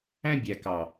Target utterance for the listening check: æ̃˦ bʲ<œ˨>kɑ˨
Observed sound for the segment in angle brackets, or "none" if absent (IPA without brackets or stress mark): æ˨